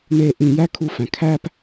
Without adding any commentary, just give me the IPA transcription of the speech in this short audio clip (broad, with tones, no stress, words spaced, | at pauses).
ne˧ ʔĩ˧jæ˦kʰu˧fæ̃˨ kʰæ˧p